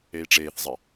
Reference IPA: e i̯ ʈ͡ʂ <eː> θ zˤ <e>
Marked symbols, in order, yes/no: yes, yes

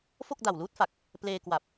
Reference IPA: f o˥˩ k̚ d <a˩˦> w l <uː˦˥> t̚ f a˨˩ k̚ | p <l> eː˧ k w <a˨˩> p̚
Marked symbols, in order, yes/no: no, yes, yes, yes

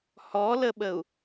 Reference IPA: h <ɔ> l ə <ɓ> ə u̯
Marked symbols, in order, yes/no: yes, yes

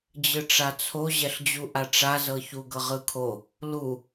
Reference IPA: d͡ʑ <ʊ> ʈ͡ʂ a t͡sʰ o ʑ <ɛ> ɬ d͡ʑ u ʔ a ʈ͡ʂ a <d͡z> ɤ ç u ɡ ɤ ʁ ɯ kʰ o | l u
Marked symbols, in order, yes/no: no, yes, no

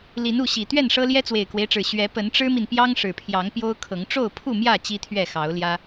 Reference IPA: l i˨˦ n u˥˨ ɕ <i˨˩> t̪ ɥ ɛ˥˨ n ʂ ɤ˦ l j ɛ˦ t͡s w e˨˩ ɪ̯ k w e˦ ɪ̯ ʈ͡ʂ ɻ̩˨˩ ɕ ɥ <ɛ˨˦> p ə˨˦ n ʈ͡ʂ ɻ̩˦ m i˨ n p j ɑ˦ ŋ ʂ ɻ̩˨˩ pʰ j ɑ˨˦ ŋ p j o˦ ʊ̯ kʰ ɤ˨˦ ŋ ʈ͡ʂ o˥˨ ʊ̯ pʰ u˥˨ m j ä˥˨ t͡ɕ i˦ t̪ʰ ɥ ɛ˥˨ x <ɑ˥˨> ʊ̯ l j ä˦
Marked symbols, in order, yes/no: yes, yes, no

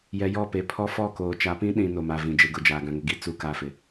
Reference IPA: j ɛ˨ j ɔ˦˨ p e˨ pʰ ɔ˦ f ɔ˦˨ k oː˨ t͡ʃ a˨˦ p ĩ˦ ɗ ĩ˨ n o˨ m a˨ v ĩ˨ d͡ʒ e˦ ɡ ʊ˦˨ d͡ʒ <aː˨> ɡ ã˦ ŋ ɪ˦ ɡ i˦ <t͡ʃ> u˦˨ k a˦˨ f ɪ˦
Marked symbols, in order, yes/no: yes, no

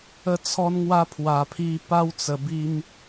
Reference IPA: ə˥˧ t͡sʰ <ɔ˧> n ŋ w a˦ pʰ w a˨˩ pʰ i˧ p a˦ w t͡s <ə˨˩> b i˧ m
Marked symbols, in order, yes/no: no, yes

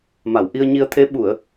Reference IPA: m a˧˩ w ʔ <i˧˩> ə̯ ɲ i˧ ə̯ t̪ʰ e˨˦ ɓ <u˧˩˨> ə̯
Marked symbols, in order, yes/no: no, yes

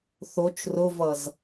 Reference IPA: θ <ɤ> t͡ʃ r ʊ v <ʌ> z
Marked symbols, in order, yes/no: no, yes

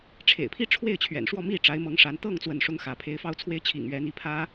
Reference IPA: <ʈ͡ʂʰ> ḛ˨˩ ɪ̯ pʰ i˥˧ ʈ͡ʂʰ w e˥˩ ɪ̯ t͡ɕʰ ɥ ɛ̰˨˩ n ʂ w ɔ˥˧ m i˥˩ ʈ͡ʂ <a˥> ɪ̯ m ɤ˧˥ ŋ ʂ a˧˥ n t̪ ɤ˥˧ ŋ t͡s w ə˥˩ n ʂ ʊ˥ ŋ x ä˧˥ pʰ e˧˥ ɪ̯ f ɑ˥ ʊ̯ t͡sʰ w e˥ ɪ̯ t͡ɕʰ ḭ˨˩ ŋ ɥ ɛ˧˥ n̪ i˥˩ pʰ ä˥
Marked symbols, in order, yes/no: yes, no

